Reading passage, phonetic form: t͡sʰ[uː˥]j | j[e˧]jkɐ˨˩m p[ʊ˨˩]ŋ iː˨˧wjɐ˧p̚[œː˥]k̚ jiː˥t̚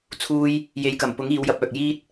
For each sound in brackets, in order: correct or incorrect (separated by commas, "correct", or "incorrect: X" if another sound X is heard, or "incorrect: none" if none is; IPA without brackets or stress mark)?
correct, incorrect: e˨˧, incorrect: ʊ˨˥, incorrect: œː˨